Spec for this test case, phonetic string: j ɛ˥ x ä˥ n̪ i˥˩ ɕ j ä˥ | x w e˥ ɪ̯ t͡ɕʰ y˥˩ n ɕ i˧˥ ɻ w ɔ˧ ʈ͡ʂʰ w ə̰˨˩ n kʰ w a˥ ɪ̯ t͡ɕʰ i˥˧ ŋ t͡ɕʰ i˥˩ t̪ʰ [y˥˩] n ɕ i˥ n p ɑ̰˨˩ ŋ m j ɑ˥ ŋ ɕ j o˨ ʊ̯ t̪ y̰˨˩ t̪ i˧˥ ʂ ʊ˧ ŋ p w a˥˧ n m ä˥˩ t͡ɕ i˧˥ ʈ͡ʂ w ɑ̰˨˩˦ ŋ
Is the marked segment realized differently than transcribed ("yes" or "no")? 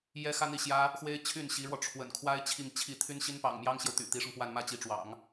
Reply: yes